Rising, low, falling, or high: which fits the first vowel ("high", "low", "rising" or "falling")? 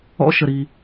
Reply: rising